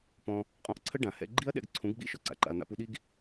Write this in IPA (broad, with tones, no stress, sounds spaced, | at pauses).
p ɔ̃˦ | qʼ ɔ̃˧ ʔ ǀʰ ə˦ ɖ ã˨ h ɛ̰˧ ɡ͡ǃ i˦ ɐ̯ ɗ ɛ̰˧ ɡ ǀʰ ũ˨˦ ɡ ɡ͡b ḭ˦˨ ʃ ɔ˦ ǀ a̰˨ ǃ a̰˧ ɐ̯ n̪ a̰˦ p u˦ ɗ i˦ ɡ